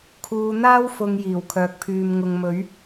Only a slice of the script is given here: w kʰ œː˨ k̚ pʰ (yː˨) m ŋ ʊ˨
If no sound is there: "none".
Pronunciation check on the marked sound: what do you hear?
yː˨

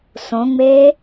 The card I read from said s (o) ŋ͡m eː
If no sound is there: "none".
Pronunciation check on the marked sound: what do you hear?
õ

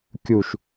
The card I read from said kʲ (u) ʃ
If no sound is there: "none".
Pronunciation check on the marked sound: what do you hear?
u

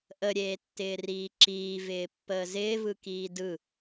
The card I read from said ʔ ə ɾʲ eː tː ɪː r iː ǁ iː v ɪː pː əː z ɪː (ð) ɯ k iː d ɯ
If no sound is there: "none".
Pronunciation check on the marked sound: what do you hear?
v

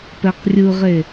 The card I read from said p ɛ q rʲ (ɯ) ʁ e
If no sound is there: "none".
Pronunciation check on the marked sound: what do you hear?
ɯ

